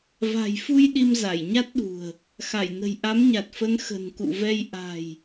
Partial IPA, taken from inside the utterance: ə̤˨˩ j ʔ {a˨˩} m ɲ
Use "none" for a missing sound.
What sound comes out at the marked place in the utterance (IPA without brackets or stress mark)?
a˨˦